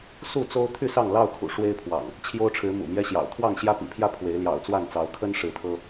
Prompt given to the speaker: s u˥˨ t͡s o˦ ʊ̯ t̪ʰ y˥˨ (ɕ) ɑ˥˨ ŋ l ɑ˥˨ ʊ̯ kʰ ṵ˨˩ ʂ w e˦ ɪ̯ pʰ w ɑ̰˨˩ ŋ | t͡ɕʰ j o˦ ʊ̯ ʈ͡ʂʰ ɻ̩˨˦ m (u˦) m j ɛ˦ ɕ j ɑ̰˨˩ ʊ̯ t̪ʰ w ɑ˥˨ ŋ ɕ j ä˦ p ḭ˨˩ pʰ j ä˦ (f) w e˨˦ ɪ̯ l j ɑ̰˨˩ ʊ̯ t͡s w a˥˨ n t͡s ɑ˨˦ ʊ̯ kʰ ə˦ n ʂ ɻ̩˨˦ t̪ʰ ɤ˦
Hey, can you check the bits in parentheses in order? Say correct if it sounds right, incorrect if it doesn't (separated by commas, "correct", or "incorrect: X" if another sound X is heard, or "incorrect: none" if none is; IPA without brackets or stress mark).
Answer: incorrect: s, incorrect: ṵ˨˩, incorrect: pʰ